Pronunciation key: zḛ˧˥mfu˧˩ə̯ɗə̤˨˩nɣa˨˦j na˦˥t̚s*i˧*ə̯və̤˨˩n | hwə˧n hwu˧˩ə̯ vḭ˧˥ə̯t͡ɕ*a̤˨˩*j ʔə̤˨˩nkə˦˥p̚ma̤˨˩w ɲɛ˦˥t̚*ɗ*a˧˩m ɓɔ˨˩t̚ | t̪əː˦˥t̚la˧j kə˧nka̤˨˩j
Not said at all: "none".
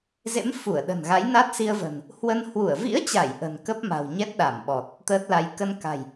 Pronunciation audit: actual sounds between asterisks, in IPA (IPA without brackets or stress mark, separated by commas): i˧, a˧˩, ɗ